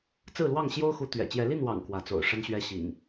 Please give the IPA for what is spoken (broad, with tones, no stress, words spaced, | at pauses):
t͡sɹ̩˥˨lwɑ˥˨ŋ ɕjo˦ʊ̯xu˨˦ t̪ɥɛ̰˨˩ t͡ɕjɛ˨˦li˥˨nwɑ̰˨˩ŋ kwä˨˦t͡so̰˨˩ʊ̯ ʂə˦nɕɥɛ˦ ɕḭ˨˩ŋ